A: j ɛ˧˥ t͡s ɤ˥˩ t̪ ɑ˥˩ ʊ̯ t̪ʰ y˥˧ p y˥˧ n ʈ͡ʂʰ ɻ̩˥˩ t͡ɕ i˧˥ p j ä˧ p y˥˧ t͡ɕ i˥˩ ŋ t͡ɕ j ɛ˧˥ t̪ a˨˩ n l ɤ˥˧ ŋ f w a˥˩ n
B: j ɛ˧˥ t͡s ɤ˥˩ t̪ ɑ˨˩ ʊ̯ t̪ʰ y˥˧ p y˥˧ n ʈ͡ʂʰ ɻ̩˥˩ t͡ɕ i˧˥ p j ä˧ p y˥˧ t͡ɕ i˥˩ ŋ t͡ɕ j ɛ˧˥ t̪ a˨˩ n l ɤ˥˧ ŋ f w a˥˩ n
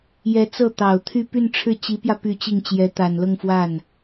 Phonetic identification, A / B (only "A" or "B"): B